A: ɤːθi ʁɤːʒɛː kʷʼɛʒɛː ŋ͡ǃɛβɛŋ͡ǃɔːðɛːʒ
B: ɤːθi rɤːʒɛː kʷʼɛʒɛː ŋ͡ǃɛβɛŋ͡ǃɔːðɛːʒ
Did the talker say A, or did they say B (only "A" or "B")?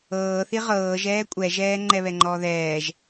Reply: A